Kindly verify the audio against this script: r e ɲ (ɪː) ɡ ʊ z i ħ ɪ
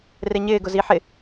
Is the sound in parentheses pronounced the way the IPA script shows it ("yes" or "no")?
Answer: yes